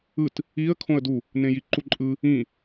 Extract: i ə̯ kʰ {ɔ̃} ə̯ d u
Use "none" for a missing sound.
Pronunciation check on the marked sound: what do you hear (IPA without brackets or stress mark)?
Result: õ